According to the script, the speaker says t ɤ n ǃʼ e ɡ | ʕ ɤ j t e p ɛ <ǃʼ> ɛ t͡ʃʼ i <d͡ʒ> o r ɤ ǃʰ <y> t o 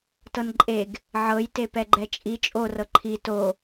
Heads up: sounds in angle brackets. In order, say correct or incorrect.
incorrect: ɡ͡ǃ, incorrect: t͡ʃʼ, incorrect: i

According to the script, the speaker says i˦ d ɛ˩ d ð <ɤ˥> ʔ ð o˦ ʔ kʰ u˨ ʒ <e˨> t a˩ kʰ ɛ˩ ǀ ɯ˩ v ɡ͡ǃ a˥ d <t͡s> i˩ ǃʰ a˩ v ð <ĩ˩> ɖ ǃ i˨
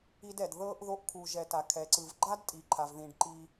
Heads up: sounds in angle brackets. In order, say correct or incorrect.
correct, incorrect: ɛ˨, incorrect: tʼ, correct

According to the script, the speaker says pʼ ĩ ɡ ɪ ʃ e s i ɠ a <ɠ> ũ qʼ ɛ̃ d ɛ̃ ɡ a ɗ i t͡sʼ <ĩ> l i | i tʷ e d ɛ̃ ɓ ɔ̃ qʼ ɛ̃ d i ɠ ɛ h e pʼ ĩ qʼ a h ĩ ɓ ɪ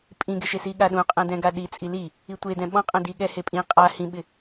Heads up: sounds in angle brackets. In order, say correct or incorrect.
incorrect: ɗ, incorrect: i

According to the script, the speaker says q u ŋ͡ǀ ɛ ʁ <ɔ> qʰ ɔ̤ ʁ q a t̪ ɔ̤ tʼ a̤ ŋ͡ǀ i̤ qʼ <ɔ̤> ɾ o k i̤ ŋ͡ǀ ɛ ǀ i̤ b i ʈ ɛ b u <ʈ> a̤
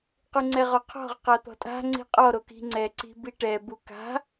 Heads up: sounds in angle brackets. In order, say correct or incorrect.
correct, incorrect: ɔ, incorrect: k

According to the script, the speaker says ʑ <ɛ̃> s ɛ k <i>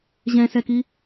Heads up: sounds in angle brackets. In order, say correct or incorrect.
correct, correct

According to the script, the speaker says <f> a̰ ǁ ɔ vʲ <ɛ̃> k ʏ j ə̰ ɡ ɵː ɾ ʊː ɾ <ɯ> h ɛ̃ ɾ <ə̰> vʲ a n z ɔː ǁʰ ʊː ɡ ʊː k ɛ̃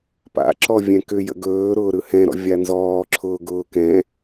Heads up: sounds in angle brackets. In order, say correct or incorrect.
incorrect: p, correct, correct, incorrect: ɔ̰

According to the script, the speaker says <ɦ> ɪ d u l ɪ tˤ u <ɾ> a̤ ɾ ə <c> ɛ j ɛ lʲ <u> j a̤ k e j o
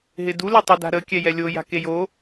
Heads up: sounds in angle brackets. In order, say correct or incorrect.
correct, incorrect: d, incorrect: kʲ, incorrect: o

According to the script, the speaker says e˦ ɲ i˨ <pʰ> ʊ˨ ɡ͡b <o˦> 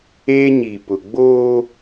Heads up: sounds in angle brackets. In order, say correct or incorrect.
incorrect: p, incorrect: oː˦

